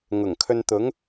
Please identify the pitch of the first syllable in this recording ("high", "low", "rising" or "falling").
low